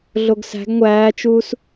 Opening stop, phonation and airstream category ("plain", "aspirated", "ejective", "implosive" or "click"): plain